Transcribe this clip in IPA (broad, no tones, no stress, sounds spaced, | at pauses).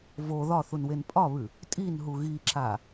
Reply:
v o ð ɒ θ u n w e n pʼ ɒ β ʉ | tʼ i n ɦ u ɣ i ǁ a